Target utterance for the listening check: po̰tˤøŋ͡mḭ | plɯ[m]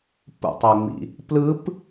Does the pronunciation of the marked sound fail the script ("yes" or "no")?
yes